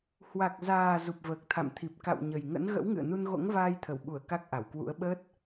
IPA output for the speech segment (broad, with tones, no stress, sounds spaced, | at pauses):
h w a˨˩ k̚ z aː˨˩ z u˨˩ p̚ v əː˨˩ k̚ t̪ʰ a̰˧˨ m t̪ʰ i˨˩ p̚ k a̰˧˨ w ɲ ə˨˩ j ŋ ə̰˧˥ n ɣ ə̰˧˥ w ŋ ɨ̰˧˨ ə̯ n u˧ n ɣ o̰˧˥ ŋ v aː˧ j t̪ʰ ə˧˩ w ɓ u˧˩ ə̯ k a˦˥ k̚ ʔ a˧˩ w k w ṵ˧˥ ə̯ ɓ əː˦˥ t̚